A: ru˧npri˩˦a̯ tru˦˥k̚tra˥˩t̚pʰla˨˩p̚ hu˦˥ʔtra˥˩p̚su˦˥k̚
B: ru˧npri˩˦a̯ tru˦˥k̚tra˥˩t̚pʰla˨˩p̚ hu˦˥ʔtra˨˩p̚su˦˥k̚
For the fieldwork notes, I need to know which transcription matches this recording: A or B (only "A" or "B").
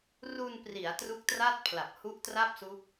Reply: A